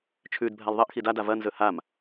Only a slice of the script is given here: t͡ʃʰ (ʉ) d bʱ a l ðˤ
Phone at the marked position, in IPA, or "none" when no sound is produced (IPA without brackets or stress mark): ʉ